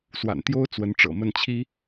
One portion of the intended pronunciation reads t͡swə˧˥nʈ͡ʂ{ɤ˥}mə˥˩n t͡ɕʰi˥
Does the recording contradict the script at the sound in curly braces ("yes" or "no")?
yes